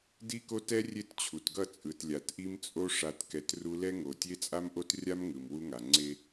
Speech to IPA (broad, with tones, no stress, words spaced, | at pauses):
di˦ko˦tɛ˦ rʲe˦tt͡ɕʰu˨tɡʌ˦˨ t͡sʼɯ˨tlʲa˨tʔi˦m t͡sʼo˦ ʂa˨tkɛ˨t ru˦ lɛ˦ŋo˨ tʲe˦t͡sʼa˦mʔo˦trʲa˦m ŋɯ˨mwu˦ŋa˨ ŋ͡ǀe˦